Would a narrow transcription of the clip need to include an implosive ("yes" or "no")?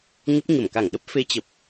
yes